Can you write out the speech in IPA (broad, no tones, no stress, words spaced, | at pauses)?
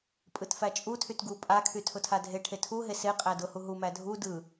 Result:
pʼɯtfæt͡ʃʼutʰyt ɡu pʼakʰy tʰʊtʰadʱeʈʰe tʰuɦe se qʼædʊhu ɦumæ dʱu dɯ